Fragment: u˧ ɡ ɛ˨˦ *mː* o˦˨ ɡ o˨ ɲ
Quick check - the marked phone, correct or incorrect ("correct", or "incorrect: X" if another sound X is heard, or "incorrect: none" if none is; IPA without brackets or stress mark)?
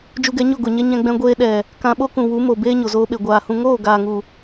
incorrect: ɲ